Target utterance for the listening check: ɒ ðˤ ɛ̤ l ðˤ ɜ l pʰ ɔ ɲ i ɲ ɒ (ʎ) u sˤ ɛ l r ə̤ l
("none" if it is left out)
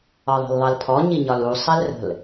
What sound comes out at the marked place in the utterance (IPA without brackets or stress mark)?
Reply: l